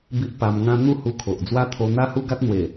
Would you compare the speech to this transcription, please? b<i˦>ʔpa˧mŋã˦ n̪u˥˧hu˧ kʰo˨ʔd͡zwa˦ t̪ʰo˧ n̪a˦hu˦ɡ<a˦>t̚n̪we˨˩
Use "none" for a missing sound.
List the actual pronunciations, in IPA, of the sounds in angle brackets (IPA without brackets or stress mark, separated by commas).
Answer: i˦, a˦